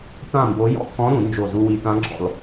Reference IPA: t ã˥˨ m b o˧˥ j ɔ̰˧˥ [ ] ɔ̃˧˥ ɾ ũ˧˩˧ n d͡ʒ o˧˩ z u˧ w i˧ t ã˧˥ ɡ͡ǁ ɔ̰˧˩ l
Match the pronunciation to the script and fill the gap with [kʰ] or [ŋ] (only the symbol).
kʰ